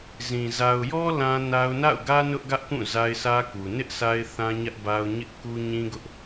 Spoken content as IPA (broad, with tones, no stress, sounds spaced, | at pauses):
z ĩ˨ z a˨ ʊ̯ j ɔ˦ l ã˦ n a˦ ʊ̯ n a̰˦˨ ʊ̯ ɡ ä˦ n ʊ˦ ʔ ɡ ä˦ ʔ k ũ˦˨ z a˦ ɪ̯ s ä˦ k u˨ n ɪ˦ ʔ s a˦ ɪ̯ θ ã˦ ɲ ä˦ ʔ b a˦ ʊ̯ ɲ ɪ˦ ʔ k u˦ ɲ ĩ˦ ɡ ʊ˦ ʔ